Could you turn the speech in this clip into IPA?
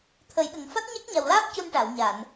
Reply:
t̪ʰ ə˨˩˦ j ɗ ə˨˩ ŋ f a˦˥ t̚ ɲ a˦˥ k̚ ɲ a˨˩ w l aː˦˥ p̚ c u˧ n ʈ a˨˩˨ w ɲ a˨˩˨ n

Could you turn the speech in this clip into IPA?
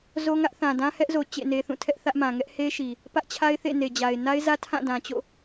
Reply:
z o˦ ŋ ä˦ ʔ θ ã˨ d ã˦ h ɛ˦ ʔ z o˨ t͡ɕ ḛ˦˨ n e˦ θ ũ˦˨ tʰ ɛ˦ ʔ θ ä˦ ʔ m ã˨ ŋ ɛ˦ ʔ h e˦ ʃ i˨ | p ä˦ ʔ t͡ɕʰ a˦ ɪ̯ θ ḛ˦˨ n e˨ d͡ʑ a˨ ɪ̯ n a˦ ɪ̯ z ä˦ tʰ ã˦˨ d ã˨ t͡ɕ o̰˦˨

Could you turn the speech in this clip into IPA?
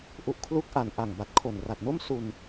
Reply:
ʔ u˨˩ ʔ kʰ l u˦˥ k̚ ʔ a˨˩ n ʔ a˨˩ ŋ b a˨˩ t̚ kʰ o˨˩ n r a˨˩ t̚ n o˥˩ m s u˧ n

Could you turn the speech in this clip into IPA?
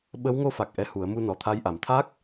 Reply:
ɓ ə˧˥ w ŋ o˧ f a˨˩ k̚ ʔ ɛ˧ h u˨˩˦ ə̯ m u˧ n ɔ˨˩ t̪ʰ a˧ j ʔ a˨˩ m t̪ʰ a˦˥ k̚

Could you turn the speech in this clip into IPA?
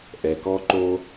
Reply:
ʔ ɛ˩ k ɔ˦ ǃ o˦

